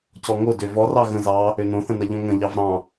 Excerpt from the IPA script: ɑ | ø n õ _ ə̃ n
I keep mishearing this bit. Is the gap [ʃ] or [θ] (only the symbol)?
θ